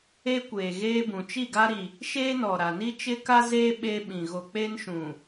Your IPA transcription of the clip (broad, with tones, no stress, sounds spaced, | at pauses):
e˦ kʷ eː˨ ɣ eː˦ b ũ˨ t͡ʃ i˦˨ ɡ a˦ ɾ i˨ | ʃ eː˦ n ɔ˨ ɾ a˨ n i˦ t͡ʃ ɪ˦ k a˦ z eː˦ ɓ eː˦ ɓ ĩ˨ ɣ o˨ k͡p e˦ n ʃ ũ˨